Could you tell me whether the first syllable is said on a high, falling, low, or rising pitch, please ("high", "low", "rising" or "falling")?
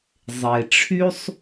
low